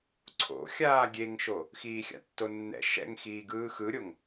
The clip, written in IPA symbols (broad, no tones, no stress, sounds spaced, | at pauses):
ǀʰ o̰ xʲ aː ɡʲ e ŋ ʃ o | x iː xʲ a̰ tː o nː ɛ̰ ʃ ɛ̰ ŋ x iː ɡ ɯː x ɯ ɾʲ o ŋ